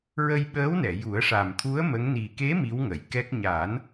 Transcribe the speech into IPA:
ɹ ə˧ j ɓ əː˧˥ w n ɛ˨˩˨ j u˨˩˦ ə̯ ʂ a˨˩ m t̪ʰ u˧˥ ə̯ m ə˧˥ ŋ n i˨˩ k e˧˥ m i˧˥ w ŋ ə˨˩˨ j k ɛ˦˥ k̚ ɲ a˨˩˦ n

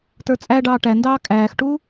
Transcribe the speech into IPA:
t ə˞ t͡sʼ æ ɖ ɑː ʈ æ n d ɑː kʼ æː x ʈ uː

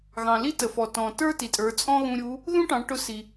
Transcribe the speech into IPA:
ɣ ɑ̃˩ l i˥ t ə˩ f ɔ˩ t ɔ̃˩ t ə˞˥ t i˩ tʼ ə˞˩˧ t͡sʼ ɔ̃˥ ɣ ũ˧ ɾʲ u˧˥ | ð ũ˥ ʈ ɑ̃˩˧ ʈ ʊ˧˥ s i˩

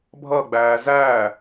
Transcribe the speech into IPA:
bʱ ʌ ɡ͡b æː z æː

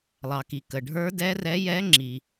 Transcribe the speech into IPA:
lˠ ɑ˨ k i˨ k ə˨ ɖʱ ə˞˧˥ d ɛ˧˥ r ɛ˧˥ j ɛ˧˥ ŋ͡ǁ i˨

